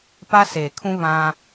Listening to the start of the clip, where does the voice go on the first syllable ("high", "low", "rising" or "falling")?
high